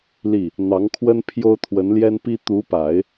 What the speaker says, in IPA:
l i˥˩ | n̪ ɑ˧˥ ŋ kʰ w ə˥ n pʰ j o˥ ʊ̯ t̪ʰ w ə˧˥ n l j ɛ˥ n p i˥ t̪ u˧˥ p a˨˩˦ ɪ̯

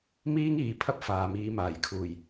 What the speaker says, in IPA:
m iː˥ ŋ iː˨˧ pʰ ɐ˥ p̚ f aː˨ m iː˨˧ m aː˨˩ j kʰ uː˨˩ j

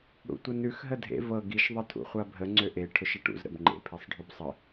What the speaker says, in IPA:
ɽ ṵ tʷ ə n ʉ x ɦ ə dʱ ḛ v ɤ ɡ i ʃ ðˤ ə tʰ ṵ χʷ a bʱ ə ŋ͡ǀ ø ʔ e ʈʰ ʊ ʃ ə ʈ ṵ z ɾ ə̰ b ŋ͡ǃ ḛ pʰ e sˤ ɖʱ ø b sˤ ə

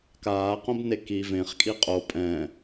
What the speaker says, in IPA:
k aː q õ b n e k i v ẽ χ kʼ i qʼ o pʼ ɛ̃ː

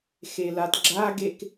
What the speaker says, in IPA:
x e l a d ɡ͡ǁ a ɡ e k

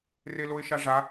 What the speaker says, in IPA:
r e l o ɪ̯ ʃ a ʐ a

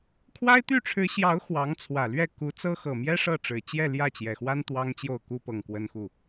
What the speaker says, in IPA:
kʰ w a˥ ɪ̯ t̪ y˥˩ ʈ͡ʂʰ ɻ̩˧˥ ɕ j ɑ˧˥ ʊ̯ x w ɑ˧˥ ŋ t͡sʰ w ä˨˩ l ɥ ɛ˥˩ k u˧˥ t͡s ɤ˥ x ɤ˨˩ m j ɛ˥ ʂ ɤ˥˩ ʈ͡ʂ ɻ̩˨˩ t͡ɕ j ɛ˥˧ l j ä˥˩ t͡ɕ j ɛ˨˩ x w a˥ n t̪ w ɑ˥ ŋ t͡ɕ j o˥˩ ʊ̯ k u˥ p ɤ˨˩ ŋ k w ə˥ n x u˥˩

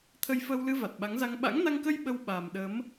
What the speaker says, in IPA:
t̪ʰ ə˧ j f əː˧ w l ɨ˧ v a˨˩ t̚ ɓ a˨˦ ŋ z a˧ ŋ ɓ a̰˧˥ ŋ n a˧ ŋ k ə˧ j ɓ ə˧ w ɓ a˨˩ m ɗ ə˨˦ m

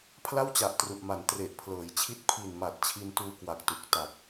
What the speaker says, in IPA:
pʰ l a˥˩ w t͡ɕ a˨˩ ʔ t r u˨˩ ʔ m a˩˦ n t r e˨˩ ʔ pʰ l ɤː˩˦ j t͡ɕʰ i˥˩ t̚ pʰ i˨˩ n m a˨˩ t̚ t͡ɕʰ i˧ n t uː˧ k w a˨˩ k̚ t u˨˩ k̚ t a˨˩ k̚

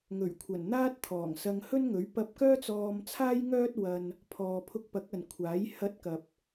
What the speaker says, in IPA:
ŋ ɵ˨˩ ɥ kʷʰ ɐ˨˩ n n̪ aː˥ t̚ t̪ʰ ɔː˨˩ ŋ s ɐ˧ ŋ h ɵ˥ n ŋ ɵ˨˥ ɥ p ɐ˧ p̚ k œː˥ t͡s ɔː˧ m t͡sʰ aː˥ j ŋ œː˥ t̚ w ɐ˧ n | pʰ ɔː˨ pʰ ʊ˧ k̚ p ɐ˨˥ k̚ ɐ˨ n kʷʰ aː˨˥ j h ɐ˧ t̚ k ɐ˨ p̚

